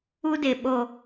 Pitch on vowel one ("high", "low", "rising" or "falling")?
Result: high